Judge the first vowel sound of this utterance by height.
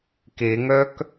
mid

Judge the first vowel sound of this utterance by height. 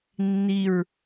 high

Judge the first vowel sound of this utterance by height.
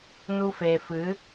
high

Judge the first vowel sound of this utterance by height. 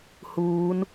high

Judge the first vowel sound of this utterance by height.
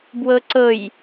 mid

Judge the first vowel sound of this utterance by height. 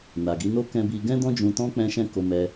low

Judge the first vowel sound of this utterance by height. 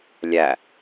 low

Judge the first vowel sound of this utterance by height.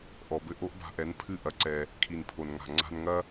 mid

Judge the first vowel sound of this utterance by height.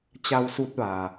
low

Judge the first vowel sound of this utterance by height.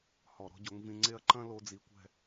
mid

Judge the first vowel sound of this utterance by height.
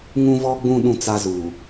high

